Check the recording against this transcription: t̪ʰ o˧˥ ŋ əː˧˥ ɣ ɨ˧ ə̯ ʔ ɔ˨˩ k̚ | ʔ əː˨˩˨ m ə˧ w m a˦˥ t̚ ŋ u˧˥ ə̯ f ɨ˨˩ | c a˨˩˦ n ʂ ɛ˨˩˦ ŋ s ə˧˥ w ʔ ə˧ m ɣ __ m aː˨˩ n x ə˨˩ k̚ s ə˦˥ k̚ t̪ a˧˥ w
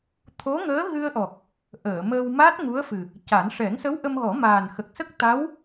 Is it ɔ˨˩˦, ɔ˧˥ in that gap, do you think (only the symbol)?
ɔ˨˩˦